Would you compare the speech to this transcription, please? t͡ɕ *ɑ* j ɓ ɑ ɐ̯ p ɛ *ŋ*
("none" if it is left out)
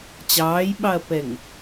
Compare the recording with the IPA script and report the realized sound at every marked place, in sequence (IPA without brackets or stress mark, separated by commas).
ɑː, ŋ